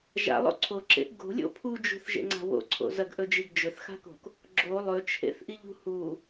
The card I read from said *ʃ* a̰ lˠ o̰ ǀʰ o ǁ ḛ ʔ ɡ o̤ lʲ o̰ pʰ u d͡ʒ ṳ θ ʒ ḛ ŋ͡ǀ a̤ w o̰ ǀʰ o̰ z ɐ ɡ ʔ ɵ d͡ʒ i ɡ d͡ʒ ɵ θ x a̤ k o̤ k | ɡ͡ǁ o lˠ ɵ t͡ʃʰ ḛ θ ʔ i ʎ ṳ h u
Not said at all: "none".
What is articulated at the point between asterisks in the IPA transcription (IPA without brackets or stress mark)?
ʒ